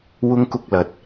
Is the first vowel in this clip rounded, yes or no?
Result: yes